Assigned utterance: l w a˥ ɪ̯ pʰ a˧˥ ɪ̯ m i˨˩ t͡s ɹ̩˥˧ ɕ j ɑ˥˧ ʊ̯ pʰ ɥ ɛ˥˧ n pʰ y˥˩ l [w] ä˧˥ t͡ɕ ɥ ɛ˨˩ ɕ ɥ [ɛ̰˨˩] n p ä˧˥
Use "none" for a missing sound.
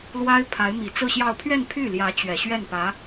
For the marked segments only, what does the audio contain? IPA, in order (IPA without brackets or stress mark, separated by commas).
j, ɛ˥˩